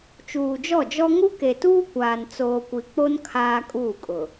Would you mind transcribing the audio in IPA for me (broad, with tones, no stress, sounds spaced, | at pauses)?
t͡ʃ uː˨ d͡ʒ ɔ˦˨ d͡ʒ ɔ˦ ŋ u˦ k e˨ t uː˦ kʷ aː˨ n t͡s oː˨ kʷ i˨ k͡p o˦ n kʰ aː˦ kʼ uː˦˨ kʼ ʊ˨